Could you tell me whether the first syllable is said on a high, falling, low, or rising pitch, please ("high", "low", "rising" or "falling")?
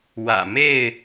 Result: low